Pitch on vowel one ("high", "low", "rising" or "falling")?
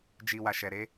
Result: low